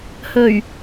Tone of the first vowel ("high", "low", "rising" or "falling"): low